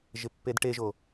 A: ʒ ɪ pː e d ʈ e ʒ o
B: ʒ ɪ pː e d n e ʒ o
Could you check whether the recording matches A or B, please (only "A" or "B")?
A